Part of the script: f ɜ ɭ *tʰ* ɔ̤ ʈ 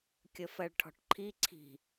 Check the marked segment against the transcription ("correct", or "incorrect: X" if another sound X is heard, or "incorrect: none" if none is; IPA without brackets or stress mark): incorrect: ʈʰ